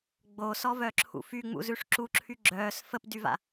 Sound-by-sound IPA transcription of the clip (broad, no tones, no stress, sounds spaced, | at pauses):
ɡ͡b o s ɔ v œ ǁʰ ṵ f y ŋ͡m ṵ z ʉ ʂ ǁ u ǁʰ y ɡ͡ǁ œː s f ə p d y v a̰